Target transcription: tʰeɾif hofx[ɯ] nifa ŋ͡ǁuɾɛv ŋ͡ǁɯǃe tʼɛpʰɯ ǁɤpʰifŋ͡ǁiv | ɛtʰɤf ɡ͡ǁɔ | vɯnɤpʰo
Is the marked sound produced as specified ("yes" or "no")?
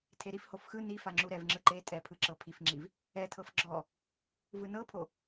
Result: yes